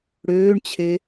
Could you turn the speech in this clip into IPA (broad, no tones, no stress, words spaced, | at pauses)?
ɽøːɳt͡ɕʰe